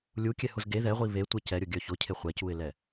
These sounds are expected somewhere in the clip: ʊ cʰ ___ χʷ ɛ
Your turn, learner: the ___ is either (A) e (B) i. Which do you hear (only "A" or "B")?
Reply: A